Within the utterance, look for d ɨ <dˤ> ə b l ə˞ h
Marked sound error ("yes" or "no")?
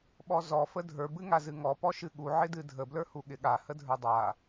yes